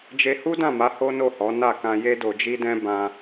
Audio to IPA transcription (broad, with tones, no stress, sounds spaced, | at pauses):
d͡ʒ e˧ h u˦ d ã˦˨ m a˨˦ h o˦ n o˦˨ h ɔ˨˦ n a˦˨ k ã˧ j e˦ d o˧ d͡ʒ i˦ d ɛ̃˦ b ã˧